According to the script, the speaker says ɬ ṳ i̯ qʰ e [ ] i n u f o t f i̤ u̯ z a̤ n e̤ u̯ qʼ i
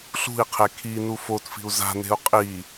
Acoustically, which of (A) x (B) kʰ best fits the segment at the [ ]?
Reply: B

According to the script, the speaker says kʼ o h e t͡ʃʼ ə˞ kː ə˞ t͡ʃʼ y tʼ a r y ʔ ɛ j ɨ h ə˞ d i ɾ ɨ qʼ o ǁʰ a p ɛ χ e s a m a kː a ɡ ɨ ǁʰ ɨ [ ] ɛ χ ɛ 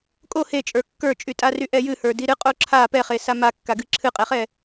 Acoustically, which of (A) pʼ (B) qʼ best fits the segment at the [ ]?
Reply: B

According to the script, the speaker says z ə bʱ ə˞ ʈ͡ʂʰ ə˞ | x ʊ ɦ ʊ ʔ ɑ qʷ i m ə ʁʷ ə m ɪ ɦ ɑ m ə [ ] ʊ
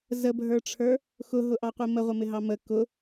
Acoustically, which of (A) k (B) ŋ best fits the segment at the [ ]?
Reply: A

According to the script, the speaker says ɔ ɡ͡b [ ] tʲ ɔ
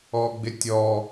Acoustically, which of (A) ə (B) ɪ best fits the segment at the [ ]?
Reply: B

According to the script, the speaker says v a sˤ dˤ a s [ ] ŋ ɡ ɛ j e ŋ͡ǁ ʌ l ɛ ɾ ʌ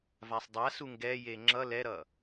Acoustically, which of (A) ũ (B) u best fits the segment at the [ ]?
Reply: B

